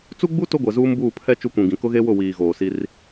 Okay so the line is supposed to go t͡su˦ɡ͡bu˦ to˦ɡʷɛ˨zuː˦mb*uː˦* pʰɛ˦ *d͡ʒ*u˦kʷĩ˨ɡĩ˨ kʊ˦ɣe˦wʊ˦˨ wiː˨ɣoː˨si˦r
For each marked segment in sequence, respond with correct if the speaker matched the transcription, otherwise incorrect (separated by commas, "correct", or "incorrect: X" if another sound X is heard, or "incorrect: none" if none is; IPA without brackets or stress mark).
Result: incorrect: uː˦˨, incorrect: t͡ʃ